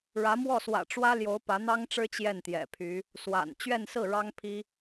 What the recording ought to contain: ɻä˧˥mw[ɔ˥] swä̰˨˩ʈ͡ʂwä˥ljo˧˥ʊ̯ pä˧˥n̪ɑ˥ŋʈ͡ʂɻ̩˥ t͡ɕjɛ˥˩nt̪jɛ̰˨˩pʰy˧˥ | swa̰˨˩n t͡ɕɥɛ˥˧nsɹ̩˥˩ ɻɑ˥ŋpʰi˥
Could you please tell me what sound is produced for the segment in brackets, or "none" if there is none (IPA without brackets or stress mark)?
ɔ˥˩